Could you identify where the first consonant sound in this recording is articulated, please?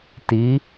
alveolar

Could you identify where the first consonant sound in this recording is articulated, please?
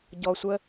palatal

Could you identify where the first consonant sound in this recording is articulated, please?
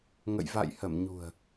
velar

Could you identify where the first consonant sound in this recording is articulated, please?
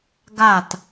velar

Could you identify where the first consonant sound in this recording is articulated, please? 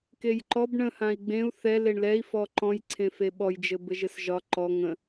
velar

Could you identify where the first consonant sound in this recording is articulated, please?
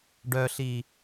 retroflex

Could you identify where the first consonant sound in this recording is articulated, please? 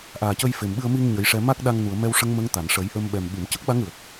glottal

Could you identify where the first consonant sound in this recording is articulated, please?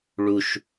retroflex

